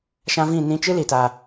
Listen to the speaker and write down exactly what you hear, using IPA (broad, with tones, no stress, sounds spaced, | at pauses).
ʃ ã˦ v ĩ˦˨ n ĩ˧ t͡ʃ ɨ˦ l i˨ t a˨